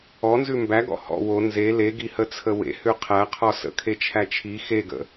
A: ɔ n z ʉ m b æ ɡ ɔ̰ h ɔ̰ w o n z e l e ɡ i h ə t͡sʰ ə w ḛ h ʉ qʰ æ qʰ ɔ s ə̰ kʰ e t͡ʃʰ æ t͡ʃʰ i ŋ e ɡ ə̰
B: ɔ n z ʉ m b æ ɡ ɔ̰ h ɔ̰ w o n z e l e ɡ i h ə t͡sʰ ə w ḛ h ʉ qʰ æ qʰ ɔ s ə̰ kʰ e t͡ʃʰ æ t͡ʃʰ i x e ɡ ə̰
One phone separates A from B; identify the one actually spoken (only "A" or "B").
B